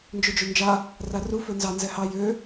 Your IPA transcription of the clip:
nd͡ʒød͡ʒønd͡ʒa | raru fønzɑ nzɛhɑ jø

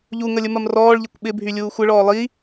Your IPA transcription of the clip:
ʎuŋəlʲəmɐm rɔːɭʎɪkʷ ɓɪbʱylʲuː xʷəɭɔː lˠi

